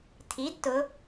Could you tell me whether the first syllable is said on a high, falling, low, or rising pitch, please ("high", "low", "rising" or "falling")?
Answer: rising